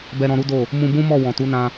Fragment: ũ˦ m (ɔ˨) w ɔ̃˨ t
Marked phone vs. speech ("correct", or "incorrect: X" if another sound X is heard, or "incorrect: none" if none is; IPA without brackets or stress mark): incorrect: ɔ˦˨